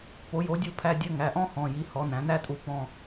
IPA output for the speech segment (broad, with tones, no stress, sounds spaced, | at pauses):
p o˩˥ j o˩˥ dʲ u˦˨ pʰ æ˧˥˧ dʲ ɘ˧˥˧ ŋ æ˩˧˩ ʔ ɔ̃˥ h ɔ̃˩˧˩ j i˩˥ h ɔ˩˥ n æ̃˩˥ n æ˥ tʼ u˦˨ p ɔ̃˦˨